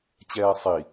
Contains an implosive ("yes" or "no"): no